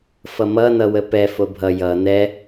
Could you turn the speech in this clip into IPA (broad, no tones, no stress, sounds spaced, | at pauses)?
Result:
f ʌ m ʌ n ʌ w ə p ɛ f o bʱ ʌ j ʌ n ɛ